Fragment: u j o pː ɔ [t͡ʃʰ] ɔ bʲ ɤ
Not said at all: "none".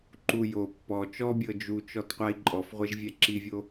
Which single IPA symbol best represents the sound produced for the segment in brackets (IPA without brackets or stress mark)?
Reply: t͡ʃ